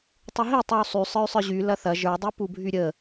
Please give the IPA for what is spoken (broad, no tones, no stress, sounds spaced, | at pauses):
tˤ y ɦ i tˤ y u̯ sˤ y sˤ ə˞ y̯ sˤ ə˞ ʑ y l ɐ θ ɐ ʒ ə˞ dˤ i p u bʱ y ɾʲ ə